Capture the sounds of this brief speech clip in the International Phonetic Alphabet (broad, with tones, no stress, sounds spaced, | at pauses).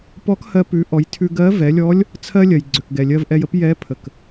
p ɔ˧˥ k h ɜ˧ p ʉ˩˧ ʔ ɔ˩˧ j tʰ ʉ˧ ɡ ɜ˧˥ v ɛ˩˧ lʲ ɔ˧˥ lʲ | t͡sʰ ɜ˥ lʲ ɜ˩ j ɡ͡ǀ ø˩ k ɡ ɛ˩ lʲ ɜ˧ v ʔ ɛ˧ j ə˥ p j ɛ˧˥ pʰ ə˩ k